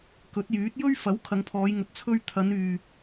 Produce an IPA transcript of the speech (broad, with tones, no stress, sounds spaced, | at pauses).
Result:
k ɵ˨˥ t̚ j yː˨˥ t̚ j ɵ˥ ɥ f ɐ˨˥ w kʰ ɐ˨˧ ŋ pʰ ɔː˨˧ j ŋ ɵ˨ t̚ t͡sʰ ɵ˧ ɥ t̪ʰ ɐ˨˧ n yː˨